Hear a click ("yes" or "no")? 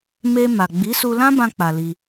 no